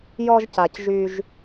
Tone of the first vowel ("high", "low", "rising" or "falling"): high